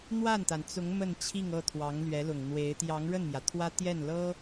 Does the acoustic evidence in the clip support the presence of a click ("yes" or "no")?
no